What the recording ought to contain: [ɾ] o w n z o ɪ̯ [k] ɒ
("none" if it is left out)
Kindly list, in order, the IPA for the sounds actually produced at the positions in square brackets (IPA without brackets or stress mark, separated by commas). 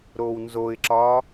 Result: ɾ, ǁ